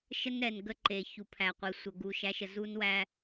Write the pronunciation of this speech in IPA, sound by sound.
ʃ ə˦ n ɾ ɛ˨ n ɡ ə˦ ǃ e˨ ç u˨ pʰ æ˨ qʷ e˨ sʷ ə˨ ɡ u˨ ʃ æ˨˦ ʃ ə˨ z u˦ n w æ˦

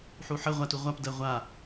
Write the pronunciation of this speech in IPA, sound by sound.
ħ u ħ ə ʁʷ a t u ʁʷ a p d ɜ ʁʷ a

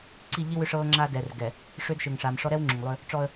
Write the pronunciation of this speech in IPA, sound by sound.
ǀ i˦˨ ʎ i˦ w ʏ˦ ʂ ɤː˦ ŋ͡ǁ aː˦ d ɛ˨ r ɡ ɛ˨ | ʂ ʏː˦ d ʃ ʏ˨ ŋ ʂ a˨ m ʂ ɔ˦ ɾ ɛ˦ w ŋ͡ǁ ʏ˨ ŋ lˠ ʏː˦ | ʈ͡ʂ ɔ˦ ə̯

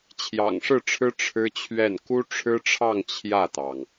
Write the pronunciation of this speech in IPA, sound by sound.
t͡ɕʰ j ɑ̰˨˩ ŋ ʂ ɻ̩˥˩ ʈ͡ʂʰ ɻ̩˥ ʈ͡ʂʰ ɻ̩˥ t͡ɕʰ ɥ ɛ˥˩ n k u˥ ʈ͡ʂʰ ɻ̩˥ ʈ͡ʂʰ ɑ˥˧ ŋ t͡ɕʰ j ä˥˩ t̪ ɑ˩ ŋ

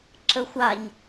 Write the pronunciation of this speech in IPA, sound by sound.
ǁ ə xʷ a ɲ

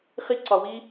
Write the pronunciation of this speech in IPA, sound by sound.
χ i˦ ǀ ɒ˧ w i˦

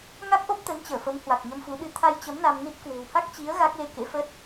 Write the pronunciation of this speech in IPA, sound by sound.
ŋ a˦˥ k̚ ʔ o˦˥ p̚ t̪ ə˨˦ n t͡ɕ əː˧˩ f ə˨˦ m h w a˨˩ k̚ ɲ ə˧ m f u˨˦ ɗ ɨ˧ t̪ʰ a˧ j t͡ɕ ə˨˦ m n a˧ m n i˦˥ t̚ k w e̤˨˩ w h a˦˥ k̚ t͡ɕ i˨˦ ə̯ ɣ a˦˥ k̚ l e˧ k ḛ˧˥ f ə˦˥ t̚

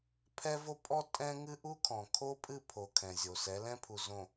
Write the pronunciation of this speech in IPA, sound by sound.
pʰ ɛ˦ v o˦ pʼ ɔ˦ tʼ ɛ̃˦ ŋ ɨ˦ ʔ u˦ kʰ ɔ̃˨ kʰ o˦ pʼ ɨ˦˨ pʰ o˨ kʰ ɛ̃˨ zʲ o˨ s ɛ˨˦ l ɛ̃˦ pʰ u˨ z õ˨

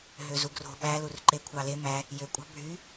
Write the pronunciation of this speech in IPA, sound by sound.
ɦ ø z u ɡ r o̤ ɓ æ l u r ǃ e kʷʰ ɑ l e m æ | j ø kʷʼ ɑ̤ bʱ y

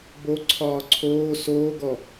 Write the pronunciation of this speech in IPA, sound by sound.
b o ǀʰ ɒː ǀʰ oː s oː ɡ ɔ

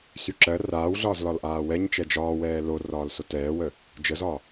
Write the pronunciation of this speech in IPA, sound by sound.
s y ǁ ɜ r aː w ɮ ɒː z l ɒ l ʔ aː w ɛ ɲ t͡ʃ ɛ d͡ʒ ɒː w ɛː l o r ɒː l s o t ɛː w ə | d͡ʒ ə z ɒ

